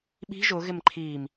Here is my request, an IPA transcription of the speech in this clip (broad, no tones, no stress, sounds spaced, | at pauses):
ɓ i̤ ʒ ʊ ɣ ɪ m ǃʰ i m